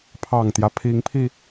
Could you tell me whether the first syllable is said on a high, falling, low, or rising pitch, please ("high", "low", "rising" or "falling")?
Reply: low